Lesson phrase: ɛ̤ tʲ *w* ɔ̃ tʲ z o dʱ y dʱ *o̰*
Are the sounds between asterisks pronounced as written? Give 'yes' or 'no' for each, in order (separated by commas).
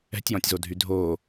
no, no